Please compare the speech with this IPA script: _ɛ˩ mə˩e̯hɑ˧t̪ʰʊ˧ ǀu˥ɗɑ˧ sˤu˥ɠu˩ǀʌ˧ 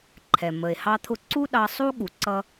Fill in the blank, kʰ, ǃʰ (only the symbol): ǃʰ